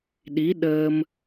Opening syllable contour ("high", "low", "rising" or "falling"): rising